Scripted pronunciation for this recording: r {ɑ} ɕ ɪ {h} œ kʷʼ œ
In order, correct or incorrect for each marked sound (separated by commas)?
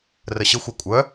incorrect, incorrect